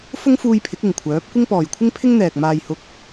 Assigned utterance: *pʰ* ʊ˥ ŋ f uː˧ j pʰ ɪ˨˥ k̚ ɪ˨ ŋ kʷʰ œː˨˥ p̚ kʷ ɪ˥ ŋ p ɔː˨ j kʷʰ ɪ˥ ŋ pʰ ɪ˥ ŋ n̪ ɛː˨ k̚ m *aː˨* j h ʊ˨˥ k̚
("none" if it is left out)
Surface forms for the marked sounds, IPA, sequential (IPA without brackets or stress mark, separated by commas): f, aː˨